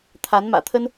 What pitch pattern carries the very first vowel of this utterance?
rising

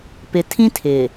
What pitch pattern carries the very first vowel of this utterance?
low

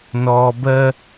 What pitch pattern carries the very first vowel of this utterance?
low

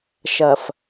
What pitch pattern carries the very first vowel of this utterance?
low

